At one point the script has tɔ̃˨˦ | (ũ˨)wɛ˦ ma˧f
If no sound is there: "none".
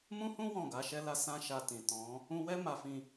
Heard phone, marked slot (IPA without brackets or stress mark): ũ˧